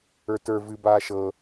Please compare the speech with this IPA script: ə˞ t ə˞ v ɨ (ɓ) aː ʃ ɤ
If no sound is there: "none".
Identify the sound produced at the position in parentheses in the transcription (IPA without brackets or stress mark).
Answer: b